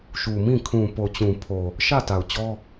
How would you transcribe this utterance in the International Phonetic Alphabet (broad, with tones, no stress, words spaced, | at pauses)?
ʃu˨mĩ˦˨ kʰũ˨po˨t͡ɕũ˨pʰo˨ | ʃä˦˨ta˨ʊ̯ t͡ɕɔ˦